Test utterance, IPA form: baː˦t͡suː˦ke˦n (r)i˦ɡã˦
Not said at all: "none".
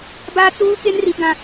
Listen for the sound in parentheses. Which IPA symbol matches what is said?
r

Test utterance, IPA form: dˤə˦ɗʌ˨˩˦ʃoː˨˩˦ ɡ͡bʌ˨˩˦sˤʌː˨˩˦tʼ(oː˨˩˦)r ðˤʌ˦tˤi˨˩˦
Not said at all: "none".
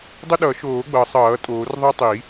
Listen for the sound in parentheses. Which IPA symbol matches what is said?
oː˨˩˦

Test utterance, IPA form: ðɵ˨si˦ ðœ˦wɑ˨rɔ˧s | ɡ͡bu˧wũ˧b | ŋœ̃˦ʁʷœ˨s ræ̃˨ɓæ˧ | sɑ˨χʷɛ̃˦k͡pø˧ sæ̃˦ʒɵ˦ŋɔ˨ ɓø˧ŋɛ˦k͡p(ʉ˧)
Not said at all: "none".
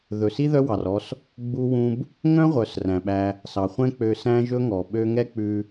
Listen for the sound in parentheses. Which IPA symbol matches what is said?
ʉ˧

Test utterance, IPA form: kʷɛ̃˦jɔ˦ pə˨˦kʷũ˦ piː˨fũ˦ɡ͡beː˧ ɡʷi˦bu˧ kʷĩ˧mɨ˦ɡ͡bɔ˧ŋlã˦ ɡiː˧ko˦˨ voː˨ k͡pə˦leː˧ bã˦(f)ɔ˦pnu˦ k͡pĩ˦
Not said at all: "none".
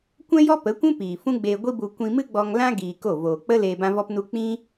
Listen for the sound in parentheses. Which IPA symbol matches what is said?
v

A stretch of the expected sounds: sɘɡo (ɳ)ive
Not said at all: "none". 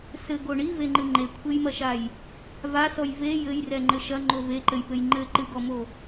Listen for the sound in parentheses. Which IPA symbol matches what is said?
ɳ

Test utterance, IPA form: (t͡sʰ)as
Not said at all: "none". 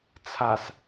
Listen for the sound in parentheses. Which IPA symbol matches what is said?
t͡sʰ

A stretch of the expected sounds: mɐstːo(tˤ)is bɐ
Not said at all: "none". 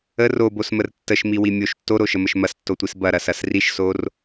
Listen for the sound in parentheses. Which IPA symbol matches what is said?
tʷ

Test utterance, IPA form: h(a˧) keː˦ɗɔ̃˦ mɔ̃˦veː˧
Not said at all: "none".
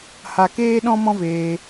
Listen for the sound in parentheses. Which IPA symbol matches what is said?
a˧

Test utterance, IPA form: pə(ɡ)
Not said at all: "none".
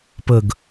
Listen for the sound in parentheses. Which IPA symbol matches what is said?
ɡ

